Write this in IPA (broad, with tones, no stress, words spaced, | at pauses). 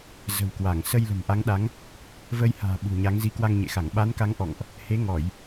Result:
zə̤˨˩wkwa˧˩ŋ sə˧jlə̤˨˩mʔa˨˦ŋɗa˨˦ŋ | və˧jha̤ː˨˩ ɓṳ˨˩ɲa˨˦ŋ zi˨˦kwa˧ŋɲḛ˧˨xa˧˩ŋ ɓa˨˦nka˨˦ŋ ʔɔ̰˧˨ŋʔ | he˨˦ŋɔ˧˩˨j